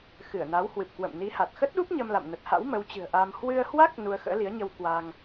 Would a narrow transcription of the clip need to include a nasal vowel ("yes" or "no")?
no